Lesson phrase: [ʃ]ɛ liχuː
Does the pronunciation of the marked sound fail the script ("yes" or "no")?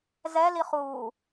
yes